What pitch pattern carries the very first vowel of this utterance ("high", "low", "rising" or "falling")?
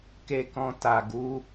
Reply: low